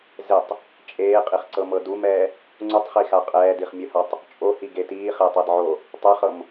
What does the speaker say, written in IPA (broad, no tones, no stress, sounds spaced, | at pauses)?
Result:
z e tˤ | t͡ʃʼ eː qʼ i χ ǀ ɤ m ɤ d u m ɛː | ŋ͡ǀ u tˤ χ i x a qʼ ɛː d i χ mʲ ɯ h a tˤ | t͡ʃʼ o h i ɡ e t iː χ eː tˤ a d ʕ o | tˤ ɛ χ ɤ m